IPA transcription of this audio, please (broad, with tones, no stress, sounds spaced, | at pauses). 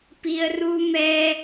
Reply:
p i˧ ə̯ r u˦ m ɛ˦